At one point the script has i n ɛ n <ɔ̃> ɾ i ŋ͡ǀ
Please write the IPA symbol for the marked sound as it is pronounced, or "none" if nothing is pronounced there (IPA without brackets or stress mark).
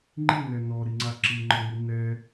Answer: ɔ